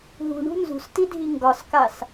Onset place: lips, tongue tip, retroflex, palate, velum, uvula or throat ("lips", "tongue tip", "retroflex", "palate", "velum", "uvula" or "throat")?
throat